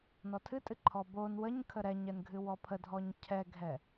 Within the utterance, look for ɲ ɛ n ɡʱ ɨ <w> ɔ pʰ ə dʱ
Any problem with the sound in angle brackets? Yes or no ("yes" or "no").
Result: no